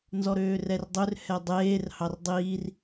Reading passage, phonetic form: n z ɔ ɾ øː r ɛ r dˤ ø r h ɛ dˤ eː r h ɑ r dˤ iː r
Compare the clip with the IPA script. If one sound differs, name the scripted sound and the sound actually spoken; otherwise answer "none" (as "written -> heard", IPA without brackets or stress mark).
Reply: none